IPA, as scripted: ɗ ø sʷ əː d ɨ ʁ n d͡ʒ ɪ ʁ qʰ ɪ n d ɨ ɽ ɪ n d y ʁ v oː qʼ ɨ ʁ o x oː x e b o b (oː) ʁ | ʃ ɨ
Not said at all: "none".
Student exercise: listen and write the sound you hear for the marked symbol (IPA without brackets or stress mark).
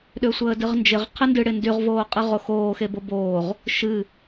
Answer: oː